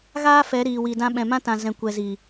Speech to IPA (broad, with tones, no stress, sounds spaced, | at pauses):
ɣ aː˦ f ɛ˨˦ ɾ iː˨ w i˨ d ã˧ ɓ ɛ̃˨ m ã˦ t ã˨ z ɛ̃˨ kʷ ɛ˨ z i˨